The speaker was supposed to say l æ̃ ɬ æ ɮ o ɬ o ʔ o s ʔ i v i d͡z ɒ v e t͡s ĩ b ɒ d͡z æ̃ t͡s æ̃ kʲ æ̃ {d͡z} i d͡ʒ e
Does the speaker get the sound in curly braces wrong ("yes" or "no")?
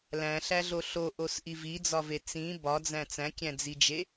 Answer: no